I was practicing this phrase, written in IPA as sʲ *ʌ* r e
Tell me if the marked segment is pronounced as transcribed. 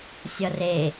yes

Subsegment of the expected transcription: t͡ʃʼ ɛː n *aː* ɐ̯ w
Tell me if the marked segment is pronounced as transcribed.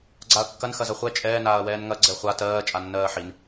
yes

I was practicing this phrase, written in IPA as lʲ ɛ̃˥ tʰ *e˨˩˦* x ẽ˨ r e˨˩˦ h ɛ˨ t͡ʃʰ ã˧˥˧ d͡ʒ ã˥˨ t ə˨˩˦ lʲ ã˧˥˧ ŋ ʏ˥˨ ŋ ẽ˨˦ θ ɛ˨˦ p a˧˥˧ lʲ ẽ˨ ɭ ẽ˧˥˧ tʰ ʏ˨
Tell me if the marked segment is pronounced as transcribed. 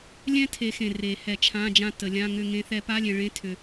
no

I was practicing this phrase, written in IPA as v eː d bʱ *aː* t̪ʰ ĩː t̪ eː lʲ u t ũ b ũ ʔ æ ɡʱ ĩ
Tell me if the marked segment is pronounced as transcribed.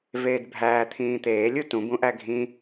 no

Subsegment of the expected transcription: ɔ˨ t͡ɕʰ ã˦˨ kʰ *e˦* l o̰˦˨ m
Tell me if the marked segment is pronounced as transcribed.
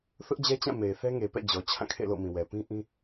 no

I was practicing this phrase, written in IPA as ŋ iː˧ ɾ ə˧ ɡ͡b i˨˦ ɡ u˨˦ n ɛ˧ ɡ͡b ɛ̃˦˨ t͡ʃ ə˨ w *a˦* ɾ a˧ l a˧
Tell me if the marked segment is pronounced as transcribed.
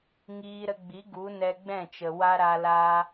yes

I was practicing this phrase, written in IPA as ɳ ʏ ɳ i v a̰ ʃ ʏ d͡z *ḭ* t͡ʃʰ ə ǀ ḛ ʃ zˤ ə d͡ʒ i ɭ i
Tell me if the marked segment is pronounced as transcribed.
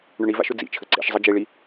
yes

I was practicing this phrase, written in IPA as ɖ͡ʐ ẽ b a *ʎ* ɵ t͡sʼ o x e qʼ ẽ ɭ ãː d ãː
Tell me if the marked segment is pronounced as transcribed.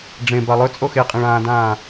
no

